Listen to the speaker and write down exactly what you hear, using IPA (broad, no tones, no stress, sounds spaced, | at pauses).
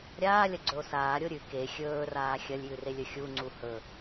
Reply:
ɾʲ aː lʲ ɐ ɡ͡ǀ ɵ o̯ s aː ɾʲ o ɾʲ ʉ k e xʲ ɵː r aː xʲ ɐ lʲ j ʉ r e lʲ ɵ xʲ u ŋ͡ǀ u h ɵ